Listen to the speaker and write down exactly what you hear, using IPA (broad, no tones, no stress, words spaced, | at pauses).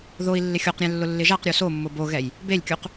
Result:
ðoi̯ lːɪxʲoqɾʲɛ̃ lːʊlːɪʒaqɾʲo somːʊ boɣɛj | belʲkʲuq